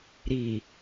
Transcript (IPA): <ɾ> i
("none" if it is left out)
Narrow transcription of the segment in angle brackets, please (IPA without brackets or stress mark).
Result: ɾ